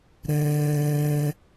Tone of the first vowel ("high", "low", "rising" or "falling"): high